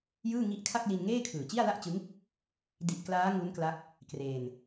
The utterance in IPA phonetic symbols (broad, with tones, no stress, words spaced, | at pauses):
jɯː˥˩ŋi˦˥ʔ kʰa˥˩k̚li˧nŋeː˥˩ kʰɯː˨˩t͡ɕi˥˩a̯la˥˩ʔt͡ɕɯ˦˥ŋ | di˨˩ʔ klaː˦˥ŋu˦˥n kla˦˥k̚ | kreː˧n